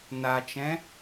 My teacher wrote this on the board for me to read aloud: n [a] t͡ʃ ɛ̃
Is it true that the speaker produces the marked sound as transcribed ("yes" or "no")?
yes